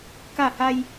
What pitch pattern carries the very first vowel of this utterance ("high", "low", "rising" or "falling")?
falling